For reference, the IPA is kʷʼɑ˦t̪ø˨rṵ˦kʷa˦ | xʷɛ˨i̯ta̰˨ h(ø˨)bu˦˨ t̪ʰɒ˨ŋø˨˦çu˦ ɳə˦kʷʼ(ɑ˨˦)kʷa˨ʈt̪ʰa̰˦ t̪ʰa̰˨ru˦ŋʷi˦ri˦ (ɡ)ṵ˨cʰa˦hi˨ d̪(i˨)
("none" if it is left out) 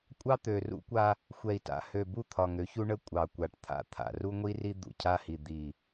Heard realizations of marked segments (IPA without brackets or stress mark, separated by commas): ø˨, ɑ˨, d̪, i˨